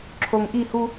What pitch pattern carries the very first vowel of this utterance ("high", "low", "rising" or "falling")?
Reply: low